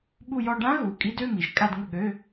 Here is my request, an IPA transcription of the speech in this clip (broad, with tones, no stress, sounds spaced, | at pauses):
ɓ u˥˧ j ɔ˥˧ ɖ ã˦˥ ɣ u˩˧˩ kʼ i˦˥ d ø˧˥˧ m i˩˧ ʒ kʼ a˥˧ d ŋ ə˥˩ ɠ ø˧˥˧